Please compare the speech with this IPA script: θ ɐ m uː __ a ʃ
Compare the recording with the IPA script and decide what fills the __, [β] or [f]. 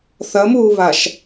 β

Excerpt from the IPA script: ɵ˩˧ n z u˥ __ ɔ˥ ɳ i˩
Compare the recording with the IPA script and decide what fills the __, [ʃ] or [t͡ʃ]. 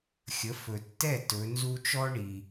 t͡ʃ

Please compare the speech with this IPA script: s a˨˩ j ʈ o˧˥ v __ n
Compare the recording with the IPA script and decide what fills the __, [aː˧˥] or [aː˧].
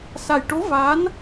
aː˧˥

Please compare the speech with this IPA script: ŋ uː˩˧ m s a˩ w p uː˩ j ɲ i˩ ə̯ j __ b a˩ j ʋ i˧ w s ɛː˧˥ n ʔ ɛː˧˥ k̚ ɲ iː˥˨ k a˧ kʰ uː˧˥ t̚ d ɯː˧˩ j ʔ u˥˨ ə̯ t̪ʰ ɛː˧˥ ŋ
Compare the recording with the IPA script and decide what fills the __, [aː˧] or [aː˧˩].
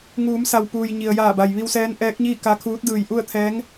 aː˧˩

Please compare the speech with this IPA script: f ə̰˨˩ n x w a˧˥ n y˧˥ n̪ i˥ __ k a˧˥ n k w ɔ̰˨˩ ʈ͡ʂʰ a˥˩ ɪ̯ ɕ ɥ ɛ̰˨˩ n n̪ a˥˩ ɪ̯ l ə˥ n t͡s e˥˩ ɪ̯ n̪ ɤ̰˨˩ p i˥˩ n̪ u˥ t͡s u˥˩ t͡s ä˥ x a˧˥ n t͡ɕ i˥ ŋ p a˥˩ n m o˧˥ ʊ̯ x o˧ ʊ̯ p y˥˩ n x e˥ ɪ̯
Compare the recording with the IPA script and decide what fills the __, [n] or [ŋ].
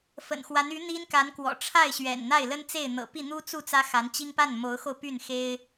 n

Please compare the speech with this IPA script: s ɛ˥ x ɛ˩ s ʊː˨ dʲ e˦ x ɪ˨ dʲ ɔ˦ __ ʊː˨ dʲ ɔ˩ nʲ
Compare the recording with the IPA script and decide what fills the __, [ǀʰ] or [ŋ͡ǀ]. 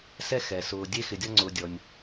ŋ͡ǀ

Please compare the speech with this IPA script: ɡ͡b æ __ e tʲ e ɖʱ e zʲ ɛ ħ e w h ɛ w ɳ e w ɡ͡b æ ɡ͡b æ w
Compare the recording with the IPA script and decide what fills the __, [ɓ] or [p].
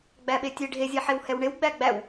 ɓ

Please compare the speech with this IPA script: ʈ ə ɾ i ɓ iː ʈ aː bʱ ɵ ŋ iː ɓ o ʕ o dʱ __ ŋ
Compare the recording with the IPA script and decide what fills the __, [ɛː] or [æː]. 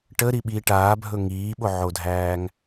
æː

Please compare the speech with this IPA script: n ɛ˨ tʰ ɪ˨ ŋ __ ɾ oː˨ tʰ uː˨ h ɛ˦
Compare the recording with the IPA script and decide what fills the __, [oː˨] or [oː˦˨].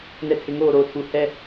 oː˦˨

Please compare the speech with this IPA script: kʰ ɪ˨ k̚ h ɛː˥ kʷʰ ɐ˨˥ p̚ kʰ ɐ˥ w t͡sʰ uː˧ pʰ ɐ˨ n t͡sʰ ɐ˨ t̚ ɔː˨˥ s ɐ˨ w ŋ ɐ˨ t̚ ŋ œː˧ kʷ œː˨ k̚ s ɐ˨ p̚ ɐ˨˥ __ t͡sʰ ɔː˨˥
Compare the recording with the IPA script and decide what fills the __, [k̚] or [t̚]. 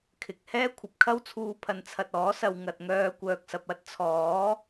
t̚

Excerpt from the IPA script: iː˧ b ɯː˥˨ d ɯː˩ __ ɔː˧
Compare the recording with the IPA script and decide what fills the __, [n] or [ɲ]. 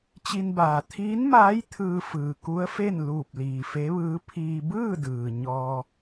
ɲ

